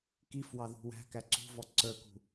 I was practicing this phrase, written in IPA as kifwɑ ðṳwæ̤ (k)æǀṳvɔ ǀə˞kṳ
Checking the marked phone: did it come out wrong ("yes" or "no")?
no